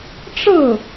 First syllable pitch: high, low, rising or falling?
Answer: falling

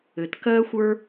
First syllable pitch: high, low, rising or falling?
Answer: low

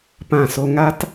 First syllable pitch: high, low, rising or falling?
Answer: falling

